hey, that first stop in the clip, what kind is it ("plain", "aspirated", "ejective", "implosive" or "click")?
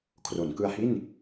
aspirated